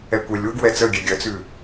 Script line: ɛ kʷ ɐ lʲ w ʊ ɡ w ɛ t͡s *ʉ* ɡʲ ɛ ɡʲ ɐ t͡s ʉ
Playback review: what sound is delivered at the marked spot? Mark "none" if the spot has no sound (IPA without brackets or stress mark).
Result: ə